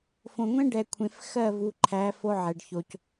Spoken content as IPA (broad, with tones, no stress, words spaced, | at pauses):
fõ˨ŋʷẽ˦ɖɛ˨kʷʰẽ˨f xɜ˦˨vu˨ǃʰæ˨˦ fo˦ʕɛ˨ɖço˨c